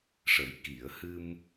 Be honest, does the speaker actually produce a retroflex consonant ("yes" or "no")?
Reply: yes